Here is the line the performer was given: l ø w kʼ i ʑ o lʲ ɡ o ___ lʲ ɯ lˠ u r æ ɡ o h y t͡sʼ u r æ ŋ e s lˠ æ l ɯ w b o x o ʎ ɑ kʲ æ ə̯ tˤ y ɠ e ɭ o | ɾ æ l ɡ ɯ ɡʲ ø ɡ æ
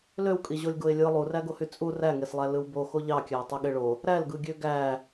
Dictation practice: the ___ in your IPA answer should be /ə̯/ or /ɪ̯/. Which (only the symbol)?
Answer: ɪ̯